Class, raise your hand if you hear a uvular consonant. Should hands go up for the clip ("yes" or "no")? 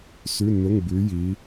no